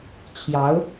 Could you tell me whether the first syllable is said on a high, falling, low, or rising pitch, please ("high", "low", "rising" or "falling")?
rising